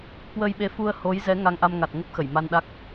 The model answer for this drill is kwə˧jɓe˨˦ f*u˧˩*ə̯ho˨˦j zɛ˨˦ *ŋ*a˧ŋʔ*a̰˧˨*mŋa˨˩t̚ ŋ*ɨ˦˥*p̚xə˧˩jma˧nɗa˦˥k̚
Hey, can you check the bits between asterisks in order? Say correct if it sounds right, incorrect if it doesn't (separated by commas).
incorrect, correct, incorrect, incorrect